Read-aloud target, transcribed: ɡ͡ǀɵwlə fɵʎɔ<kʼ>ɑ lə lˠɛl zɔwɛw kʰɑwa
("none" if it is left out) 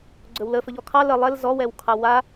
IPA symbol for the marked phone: kʰ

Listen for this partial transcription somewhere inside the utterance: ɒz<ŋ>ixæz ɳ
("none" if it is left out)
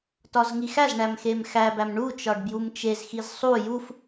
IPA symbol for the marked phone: ŋ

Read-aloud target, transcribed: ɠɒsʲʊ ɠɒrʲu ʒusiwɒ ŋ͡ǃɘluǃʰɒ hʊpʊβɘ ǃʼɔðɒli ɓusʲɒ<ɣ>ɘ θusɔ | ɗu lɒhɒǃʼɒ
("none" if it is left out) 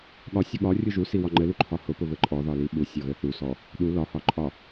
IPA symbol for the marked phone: ɣ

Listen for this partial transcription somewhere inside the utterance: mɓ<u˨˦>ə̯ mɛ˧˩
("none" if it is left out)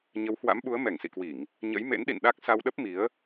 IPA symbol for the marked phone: u˨˦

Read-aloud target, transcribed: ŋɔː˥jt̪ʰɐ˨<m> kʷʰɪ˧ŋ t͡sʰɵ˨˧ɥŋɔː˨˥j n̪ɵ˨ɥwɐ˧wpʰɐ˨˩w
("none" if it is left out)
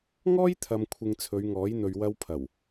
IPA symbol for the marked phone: m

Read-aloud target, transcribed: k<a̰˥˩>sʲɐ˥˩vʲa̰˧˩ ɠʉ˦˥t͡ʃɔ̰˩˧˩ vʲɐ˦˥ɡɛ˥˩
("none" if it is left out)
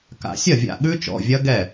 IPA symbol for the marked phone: a̰˨˩˦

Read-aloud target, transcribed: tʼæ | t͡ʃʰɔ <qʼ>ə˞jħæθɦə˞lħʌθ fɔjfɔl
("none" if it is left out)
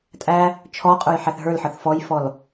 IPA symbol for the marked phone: qʼ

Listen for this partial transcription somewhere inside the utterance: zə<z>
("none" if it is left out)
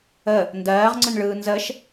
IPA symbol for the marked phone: ʃ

